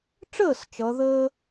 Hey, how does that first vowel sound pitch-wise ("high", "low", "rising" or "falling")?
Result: falling